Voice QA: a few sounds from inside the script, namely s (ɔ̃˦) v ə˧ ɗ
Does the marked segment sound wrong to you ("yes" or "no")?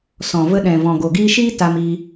yes